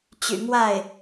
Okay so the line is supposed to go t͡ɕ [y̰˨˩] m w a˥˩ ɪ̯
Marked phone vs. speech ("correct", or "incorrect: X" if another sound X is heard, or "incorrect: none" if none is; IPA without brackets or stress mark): correct